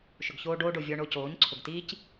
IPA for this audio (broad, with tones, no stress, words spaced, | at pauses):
ʃʊ˨ɡçoː˧ɖoː˧ɖo˨ vʲɔ˧ ɳo˧coː˨˦ɲǀʰʊ˨ɡtiː˦c